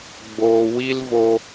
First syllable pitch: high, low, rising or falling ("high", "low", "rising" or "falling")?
low